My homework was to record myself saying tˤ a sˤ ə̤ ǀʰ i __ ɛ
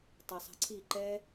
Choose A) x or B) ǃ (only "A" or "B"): B